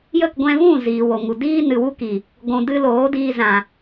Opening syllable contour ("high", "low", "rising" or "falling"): falling